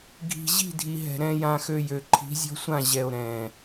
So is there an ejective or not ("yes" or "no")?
no